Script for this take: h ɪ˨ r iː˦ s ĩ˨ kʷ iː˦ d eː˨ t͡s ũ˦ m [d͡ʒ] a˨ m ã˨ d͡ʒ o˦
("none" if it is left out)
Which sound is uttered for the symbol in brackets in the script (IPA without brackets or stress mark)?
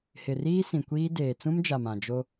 d͡ʒ